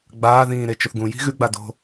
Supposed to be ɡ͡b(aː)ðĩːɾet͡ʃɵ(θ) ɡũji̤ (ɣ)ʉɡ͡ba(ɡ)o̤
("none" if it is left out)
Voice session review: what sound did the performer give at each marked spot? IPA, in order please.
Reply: aː, θ, ɣ, d

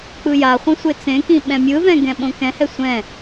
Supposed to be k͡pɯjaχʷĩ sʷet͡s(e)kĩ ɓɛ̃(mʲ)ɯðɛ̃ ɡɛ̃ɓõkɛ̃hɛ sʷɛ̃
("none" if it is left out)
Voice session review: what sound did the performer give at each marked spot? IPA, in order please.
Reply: ẽ, mʲ

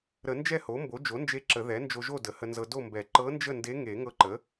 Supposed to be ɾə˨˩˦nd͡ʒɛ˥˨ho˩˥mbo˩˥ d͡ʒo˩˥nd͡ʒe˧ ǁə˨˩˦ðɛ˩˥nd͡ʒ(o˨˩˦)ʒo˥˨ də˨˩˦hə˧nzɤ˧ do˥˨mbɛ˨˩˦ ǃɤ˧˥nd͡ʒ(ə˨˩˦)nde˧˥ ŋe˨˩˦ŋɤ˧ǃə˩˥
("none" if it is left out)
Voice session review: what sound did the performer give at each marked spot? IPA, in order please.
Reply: o˧, ə˥˨

